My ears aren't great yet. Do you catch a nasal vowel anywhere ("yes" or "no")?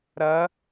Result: no